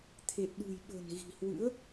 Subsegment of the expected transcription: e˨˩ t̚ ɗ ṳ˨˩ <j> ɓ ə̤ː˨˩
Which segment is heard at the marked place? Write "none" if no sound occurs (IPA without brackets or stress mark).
j